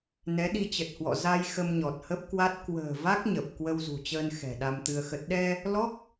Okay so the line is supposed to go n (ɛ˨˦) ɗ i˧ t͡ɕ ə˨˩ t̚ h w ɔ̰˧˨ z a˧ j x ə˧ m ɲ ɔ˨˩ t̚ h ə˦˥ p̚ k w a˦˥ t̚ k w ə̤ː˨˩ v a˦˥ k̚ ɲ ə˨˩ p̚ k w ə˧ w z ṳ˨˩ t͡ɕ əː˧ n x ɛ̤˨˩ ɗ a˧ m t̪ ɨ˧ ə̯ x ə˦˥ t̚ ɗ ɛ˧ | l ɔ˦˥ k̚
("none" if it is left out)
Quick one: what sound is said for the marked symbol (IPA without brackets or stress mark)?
ɛ˨˦